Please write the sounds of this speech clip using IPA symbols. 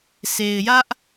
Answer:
se˨ɪ̯jä˦ʔ

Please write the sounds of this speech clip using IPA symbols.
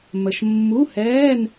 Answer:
mə˨ʃ mːu˧˥˧hɛː˧˥˧n

